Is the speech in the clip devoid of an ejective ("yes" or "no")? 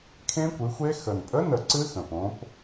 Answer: no